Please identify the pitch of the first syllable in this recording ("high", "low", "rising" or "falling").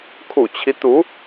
low